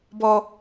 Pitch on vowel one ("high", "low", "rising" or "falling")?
low